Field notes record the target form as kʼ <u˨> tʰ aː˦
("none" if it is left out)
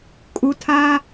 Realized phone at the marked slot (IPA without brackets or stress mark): u˨